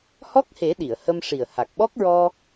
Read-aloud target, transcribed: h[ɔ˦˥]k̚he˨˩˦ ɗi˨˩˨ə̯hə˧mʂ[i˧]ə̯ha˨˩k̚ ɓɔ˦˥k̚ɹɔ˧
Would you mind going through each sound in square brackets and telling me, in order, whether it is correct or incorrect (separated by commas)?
correct, incorrect